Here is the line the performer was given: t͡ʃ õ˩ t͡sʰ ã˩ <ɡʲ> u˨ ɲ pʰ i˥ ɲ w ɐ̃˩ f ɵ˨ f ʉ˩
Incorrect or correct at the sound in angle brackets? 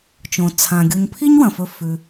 correct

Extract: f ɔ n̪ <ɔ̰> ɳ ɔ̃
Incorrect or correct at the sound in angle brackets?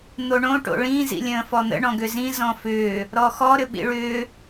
incorrect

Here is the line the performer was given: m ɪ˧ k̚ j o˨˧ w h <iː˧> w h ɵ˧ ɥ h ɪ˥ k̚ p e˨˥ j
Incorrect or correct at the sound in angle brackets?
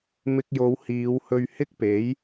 incorrect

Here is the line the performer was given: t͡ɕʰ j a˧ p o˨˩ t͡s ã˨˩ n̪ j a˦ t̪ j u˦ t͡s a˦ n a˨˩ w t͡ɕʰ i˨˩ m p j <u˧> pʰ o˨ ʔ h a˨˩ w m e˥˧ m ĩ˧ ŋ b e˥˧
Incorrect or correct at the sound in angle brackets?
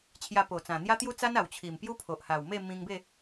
incorrect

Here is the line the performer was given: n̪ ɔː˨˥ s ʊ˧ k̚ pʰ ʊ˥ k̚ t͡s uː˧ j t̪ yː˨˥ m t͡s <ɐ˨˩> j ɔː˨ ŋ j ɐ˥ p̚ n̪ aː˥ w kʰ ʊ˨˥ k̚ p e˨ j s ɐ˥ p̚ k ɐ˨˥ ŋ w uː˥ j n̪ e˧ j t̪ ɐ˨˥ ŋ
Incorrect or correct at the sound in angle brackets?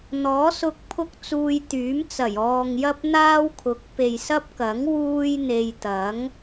correct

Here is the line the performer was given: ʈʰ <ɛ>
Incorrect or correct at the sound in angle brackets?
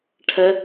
correct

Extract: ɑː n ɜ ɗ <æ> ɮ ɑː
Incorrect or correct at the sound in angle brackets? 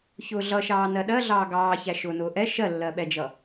incorrect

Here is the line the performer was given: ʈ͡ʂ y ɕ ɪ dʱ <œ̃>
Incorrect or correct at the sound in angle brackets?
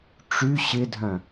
correct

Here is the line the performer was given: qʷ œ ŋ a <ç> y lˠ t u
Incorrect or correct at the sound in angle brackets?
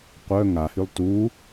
incorrect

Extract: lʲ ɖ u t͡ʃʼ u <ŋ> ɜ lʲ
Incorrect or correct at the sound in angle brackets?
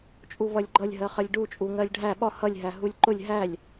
correct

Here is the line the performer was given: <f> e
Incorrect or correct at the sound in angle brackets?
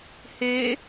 incorrect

